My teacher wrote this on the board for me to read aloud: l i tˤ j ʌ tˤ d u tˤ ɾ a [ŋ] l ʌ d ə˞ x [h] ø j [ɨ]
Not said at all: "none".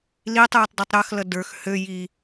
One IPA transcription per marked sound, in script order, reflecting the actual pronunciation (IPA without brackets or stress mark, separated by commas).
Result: x, h, i